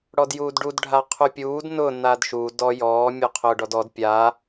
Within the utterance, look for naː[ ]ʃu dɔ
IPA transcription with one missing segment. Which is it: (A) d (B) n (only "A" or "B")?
A